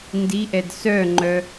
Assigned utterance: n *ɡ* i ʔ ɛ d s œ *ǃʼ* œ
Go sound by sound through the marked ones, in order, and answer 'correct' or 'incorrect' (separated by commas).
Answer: incorrect, incorrect